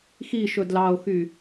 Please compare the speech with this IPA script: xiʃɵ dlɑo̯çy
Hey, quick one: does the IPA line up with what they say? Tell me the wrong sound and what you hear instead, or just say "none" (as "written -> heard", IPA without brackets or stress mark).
ç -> x